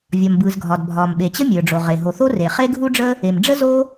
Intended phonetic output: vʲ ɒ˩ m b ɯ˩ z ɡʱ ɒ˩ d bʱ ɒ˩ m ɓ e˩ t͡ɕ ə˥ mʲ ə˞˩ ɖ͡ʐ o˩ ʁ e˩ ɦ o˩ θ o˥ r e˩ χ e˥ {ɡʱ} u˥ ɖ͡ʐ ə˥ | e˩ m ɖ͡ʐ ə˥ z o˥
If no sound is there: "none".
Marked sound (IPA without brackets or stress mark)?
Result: ɡʱ